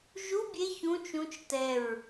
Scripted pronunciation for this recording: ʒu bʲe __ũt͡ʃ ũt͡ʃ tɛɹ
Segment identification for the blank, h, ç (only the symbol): ç